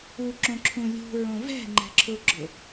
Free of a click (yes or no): no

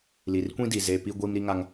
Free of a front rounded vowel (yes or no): yes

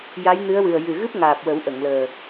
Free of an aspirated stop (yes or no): yes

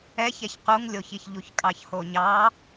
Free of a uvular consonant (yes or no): no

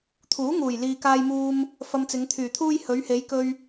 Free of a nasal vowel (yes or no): yes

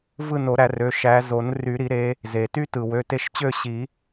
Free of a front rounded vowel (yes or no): no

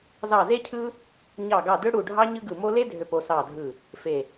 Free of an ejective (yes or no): yes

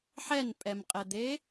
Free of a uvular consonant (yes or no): no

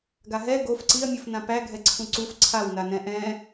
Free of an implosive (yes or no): yes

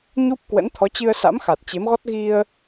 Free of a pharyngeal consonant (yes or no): yes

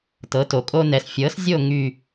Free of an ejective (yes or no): no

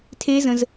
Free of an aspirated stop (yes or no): no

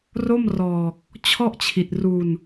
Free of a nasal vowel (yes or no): yes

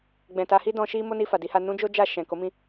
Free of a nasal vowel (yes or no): no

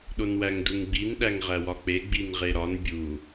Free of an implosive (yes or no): no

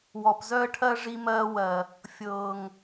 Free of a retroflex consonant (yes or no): no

